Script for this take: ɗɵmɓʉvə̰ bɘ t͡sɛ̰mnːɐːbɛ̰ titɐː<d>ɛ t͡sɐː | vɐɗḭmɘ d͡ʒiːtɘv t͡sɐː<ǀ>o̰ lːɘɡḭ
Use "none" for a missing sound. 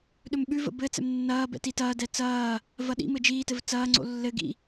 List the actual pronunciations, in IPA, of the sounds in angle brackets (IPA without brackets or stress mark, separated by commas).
d, ŋ͡ǀ